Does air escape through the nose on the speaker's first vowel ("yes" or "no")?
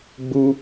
no